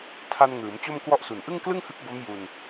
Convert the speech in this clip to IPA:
tʰ a˧ n ŋ ɯː˩˦ m t͡ɕ o˥˩ m k w ɔ˥˩ ʔ s u˨˩ n ʔ ɯ˥˩ ŋ k l ɯ˥˩ ŋ h ɯ˦˥ k̚ b o˦˥ m j u˧ n

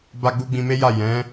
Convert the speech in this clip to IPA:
b a˦ ɡ͡b u˦ ɡ͡b ĩ˧ m e˦ j a˦˨ j ɛ̃˨˦

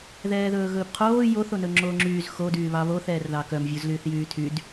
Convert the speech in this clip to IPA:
ð ɛː ð ɵː ɣ ɵː p qʰ oː j o θ o n ɵ ŋ͡ǁ oː ŋ͡ǁ yː z x o d yː β ɑ β o θ ɛː r ð ɑ k œ m vʲ u z l yː θ j yː tʰ y d

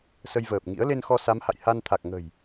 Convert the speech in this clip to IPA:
s ə˧ j v əː˨˩ p̚ ŋ ḭ˧˥ ə̯ l e˧ n x ɔ˧ s a˨˦ m h a̰˧˨ j h a˧ n t̪ʰ a˨˩ k̚ ŋ ə̤˨˩ j

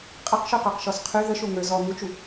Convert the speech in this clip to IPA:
qʼ ə q ʃ y q ə˞ q ʃ ɔ s qʰ y ð ə ʃ o ŋ ə˞ z ɔ m u t͡ʃ u

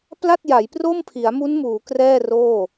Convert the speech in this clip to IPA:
p l a˥˩ t̚ j a˩˦ j p r o˥˩ m pʰ i˩˦ a̯ m u˦˥ n m uː˩˦ k r ɛː˥˩ r oː˥˩

